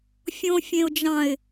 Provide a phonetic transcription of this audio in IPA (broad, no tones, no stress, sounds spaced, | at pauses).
fʲ õ fʲ ẽ ʊ̯ d͡ʒ ɑ̃ ɪ̯